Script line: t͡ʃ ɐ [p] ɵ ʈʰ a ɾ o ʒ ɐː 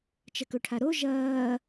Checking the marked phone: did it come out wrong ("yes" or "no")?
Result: yes